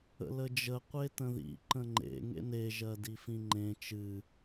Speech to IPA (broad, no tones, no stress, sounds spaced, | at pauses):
ə̰ l ə d͡ʒ ə qʷ e t ə̃ ð ḭ ǃ ə̃ ŋ͡ǃ ḛ ŋ ḛ n e ʒ ɜ d i f ĩ ŋ͡ǃ ẽ t͡ʃ ɨ